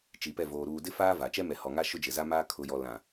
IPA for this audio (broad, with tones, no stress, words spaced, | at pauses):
t͡ʃi˨pɛ˦˨ voː˨ ɾuː˨dɪ˦faː˦ va˨ t͡ʃɛ˦mɛ˨hɔ˨ŋa˦ ʃʊ˦d͡ʒɪ˨za˦maː˦ kʰʊ˨jɔ˨lã˨